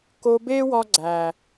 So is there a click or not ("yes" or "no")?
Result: yes